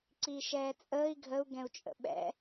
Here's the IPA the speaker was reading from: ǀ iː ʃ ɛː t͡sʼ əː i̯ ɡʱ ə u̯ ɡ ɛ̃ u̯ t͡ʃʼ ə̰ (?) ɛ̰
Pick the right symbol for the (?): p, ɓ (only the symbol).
ɓ